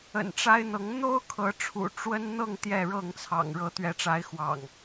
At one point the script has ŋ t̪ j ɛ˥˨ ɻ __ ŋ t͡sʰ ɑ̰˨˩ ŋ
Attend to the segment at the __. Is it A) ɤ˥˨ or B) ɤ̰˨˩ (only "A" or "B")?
A